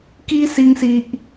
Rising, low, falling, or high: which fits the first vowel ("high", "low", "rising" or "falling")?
high